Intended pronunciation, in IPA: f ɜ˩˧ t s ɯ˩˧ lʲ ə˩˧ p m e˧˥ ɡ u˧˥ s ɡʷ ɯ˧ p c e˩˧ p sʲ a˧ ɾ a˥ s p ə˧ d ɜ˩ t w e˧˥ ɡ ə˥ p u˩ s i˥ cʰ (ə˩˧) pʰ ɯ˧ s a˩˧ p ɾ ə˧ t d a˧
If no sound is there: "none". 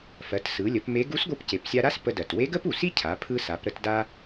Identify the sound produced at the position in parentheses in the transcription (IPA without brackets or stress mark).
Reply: a˩˧